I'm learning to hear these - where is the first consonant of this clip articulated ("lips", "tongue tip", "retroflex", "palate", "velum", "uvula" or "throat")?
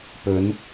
lips